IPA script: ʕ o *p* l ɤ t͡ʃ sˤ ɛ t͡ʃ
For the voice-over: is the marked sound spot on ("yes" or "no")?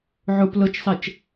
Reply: yes